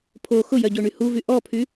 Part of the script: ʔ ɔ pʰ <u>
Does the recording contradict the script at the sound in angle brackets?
yes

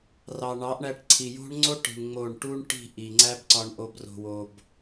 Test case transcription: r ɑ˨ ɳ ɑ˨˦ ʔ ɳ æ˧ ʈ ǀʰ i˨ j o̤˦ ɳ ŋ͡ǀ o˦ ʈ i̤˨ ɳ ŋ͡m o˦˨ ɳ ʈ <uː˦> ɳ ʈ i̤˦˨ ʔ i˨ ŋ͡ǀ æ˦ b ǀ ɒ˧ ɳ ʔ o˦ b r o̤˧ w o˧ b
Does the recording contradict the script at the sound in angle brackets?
yes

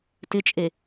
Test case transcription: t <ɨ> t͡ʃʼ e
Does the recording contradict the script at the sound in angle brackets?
yes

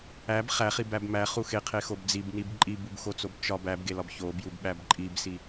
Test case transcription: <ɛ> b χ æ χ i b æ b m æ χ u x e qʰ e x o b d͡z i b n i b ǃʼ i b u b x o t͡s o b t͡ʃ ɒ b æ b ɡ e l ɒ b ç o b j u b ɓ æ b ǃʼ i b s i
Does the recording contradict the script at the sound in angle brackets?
yes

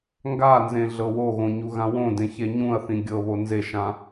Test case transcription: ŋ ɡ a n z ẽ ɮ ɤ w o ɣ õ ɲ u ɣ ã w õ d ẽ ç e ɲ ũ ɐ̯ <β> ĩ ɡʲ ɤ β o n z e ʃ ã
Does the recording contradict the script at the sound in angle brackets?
yes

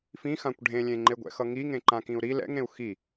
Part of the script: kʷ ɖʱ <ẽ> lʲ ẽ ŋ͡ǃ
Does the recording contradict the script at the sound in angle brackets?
no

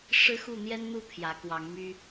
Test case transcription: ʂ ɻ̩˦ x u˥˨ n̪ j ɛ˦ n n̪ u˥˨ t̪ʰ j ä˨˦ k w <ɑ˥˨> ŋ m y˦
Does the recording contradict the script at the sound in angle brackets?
yes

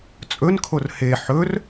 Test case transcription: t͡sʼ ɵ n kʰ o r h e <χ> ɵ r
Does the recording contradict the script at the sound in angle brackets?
yes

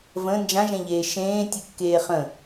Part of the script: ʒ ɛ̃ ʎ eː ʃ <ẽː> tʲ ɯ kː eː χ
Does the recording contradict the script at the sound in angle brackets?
no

